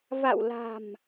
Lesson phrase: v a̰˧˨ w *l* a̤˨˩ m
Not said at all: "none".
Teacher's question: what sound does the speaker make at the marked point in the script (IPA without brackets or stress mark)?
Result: l